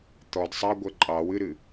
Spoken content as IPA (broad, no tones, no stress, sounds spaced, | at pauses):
t̪ ɔ d sˤ ɑ ɡʷ ɛ ǃʼ ɑ w ɨ ɾ ɨ